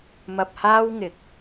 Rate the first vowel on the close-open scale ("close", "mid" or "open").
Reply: open